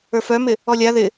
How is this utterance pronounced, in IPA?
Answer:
ə˞ f œ m ɪ | ɔ lʲ a ð ɪ

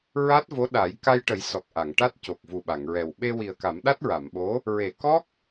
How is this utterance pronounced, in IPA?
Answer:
ɹ a˦˥ t̚ v o˧˥ ɗ a˨˩˦ j k a˧ j ʈ ə˨˩˦ j s ɔ˨˩ k̚ ʔ a˨˩˨ ŋ ʈ a˦˥ t̚ c o˨˩ k̚ v u˨˩ ɓ a˨˩˨ ŋ ɹ ɛ˨˩ w ɓ e˧ w i˨˩ ə̯ k a˨˩˦ m ɗ a˦˥ t̚ ɹ a˨˩˨ m ɓ o˧˥ | ɹ e˨˩˨ k ɔ˦˥ k̚

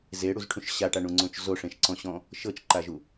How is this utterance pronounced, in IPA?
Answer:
z e ɽ u z ʈʰ ũ ʃ ɕ a ʈ a ɳ ũ ŋ͡ǀ õ t͡ʃ z o ʂ ẽ ʃ ǀ ɔ̃ ɕ ɔ̃ | ʃ ɤ t͡ʃ ǃ a ʒ u

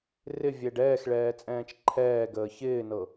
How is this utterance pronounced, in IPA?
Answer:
r ɪ vʲ ɛ ɖ ɛː x ɭ ɛː t͡sʼ ɛ̃ː t͡ʃ ǃʰ ɛː ɡ əː ç ɪː n ɤ

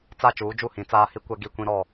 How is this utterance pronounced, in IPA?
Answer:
t͡s a˦˨ t͡ʃ uː˨˦ d͡ʒ u˦˨ h ĩ˨ t͡s aː˦ h i˦ kʷ ɛ˦ ɡ i˦˨ kʷ ĩ˦ ɾ ɔ˦˨

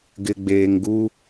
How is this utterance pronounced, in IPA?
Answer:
ɡ ɪ˨ ɡ͡b eː˨ ŋ ɡ u˦

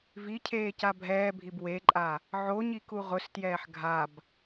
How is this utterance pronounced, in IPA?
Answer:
v i cʰ eː c a bʱ ɛː bʱ i b w e ǃʼ a | ʕ o ɲ i k u ʁ ʊ s t j ɛː ħ ɡʱ a b

